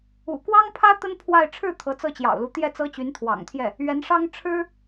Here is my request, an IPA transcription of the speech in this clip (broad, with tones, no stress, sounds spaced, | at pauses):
ṵ˨˩ k w ɑ˥ ŋ pʰ ä˥ t̪ ə˥ n pʰ w a˥˧ ɪ̯ ʈ͡ʂʰ ɻ̩˥˩ t̪ʰ ɤ˧˥ t͡s ɤ˥˩ t͡ɕ j ɑ̰˨˩ ʊ̯ l u˧˥ t̪ j ɛ˥˩ t͡s ɤ˥ t͡ɕ y˧˥ n t̪ʰ w ɑ̰˨˩ ŋ t̪ʰ j ɛ˥˩ | ɥ ɛ˧˥ n ʂ ɑ˥ ŋ ʈ͡ʂʰ ɻ̩˥